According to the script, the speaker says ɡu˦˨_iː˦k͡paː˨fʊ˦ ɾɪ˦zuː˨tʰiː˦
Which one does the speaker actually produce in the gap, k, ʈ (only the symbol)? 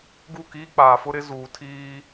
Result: k